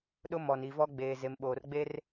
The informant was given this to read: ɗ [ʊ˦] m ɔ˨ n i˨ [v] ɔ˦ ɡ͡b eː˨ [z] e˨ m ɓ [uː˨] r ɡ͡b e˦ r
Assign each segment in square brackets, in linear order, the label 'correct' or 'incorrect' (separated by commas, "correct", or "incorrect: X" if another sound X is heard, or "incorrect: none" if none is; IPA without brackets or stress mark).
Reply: correct, correct, correct, incorrect: oː˨